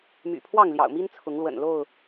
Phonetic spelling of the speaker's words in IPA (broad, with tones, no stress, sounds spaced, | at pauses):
m y̰˨˩ pʰ w ɑ˥˨ ŋ l j ɑ̰˨˩ ʊ̯ m i˦ n t͡sʰ ʊ˨˦ ŋ l w ə̰˨˩ n l o˥˨ ʊ̯